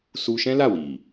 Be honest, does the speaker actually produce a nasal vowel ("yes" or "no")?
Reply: yes